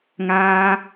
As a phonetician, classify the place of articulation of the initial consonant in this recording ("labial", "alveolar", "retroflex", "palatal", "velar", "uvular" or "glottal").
velar